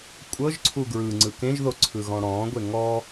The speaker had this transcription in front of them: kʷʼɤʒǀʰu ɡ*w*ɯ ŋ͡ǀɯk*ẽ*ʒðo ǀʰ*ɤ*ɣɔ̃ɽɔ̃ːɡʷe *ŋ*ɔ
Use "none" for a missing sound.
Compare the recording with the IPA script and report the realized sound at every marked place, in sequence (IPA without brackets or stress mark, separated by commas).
ɹ, ẽ, ɯ, ŋ